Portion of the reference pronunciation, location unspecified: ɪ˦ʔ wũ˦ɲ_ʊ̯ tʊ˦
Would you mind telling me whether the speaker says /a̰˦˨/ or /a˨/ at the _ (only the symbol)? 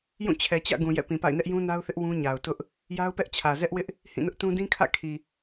a˨